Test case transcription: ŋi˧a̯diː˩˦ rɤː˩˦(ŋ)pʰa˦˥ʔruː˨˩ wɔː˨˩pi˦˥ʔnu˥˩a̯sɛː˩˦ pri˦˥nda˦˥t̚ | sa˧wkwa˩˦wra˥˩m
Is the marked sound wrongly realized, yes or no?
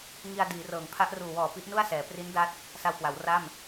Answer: no